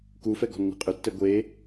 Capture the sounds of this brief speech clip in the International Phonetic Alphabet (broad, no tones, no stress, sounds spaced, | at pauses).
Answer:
k u f ɛ ɡ ɔ̤ nː i̤ qʼ ʏ tː ɛ ɡʷ e